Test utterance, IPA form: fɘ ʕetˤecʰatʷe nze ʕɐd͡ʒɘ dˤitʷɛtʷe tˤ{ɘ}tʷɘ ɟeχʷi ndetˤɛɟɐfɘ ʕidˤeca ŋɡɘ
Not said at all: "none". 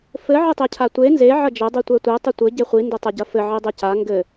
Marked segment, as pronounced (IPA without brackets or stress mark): ɘ